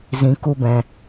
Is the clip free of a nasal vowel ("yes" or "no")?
no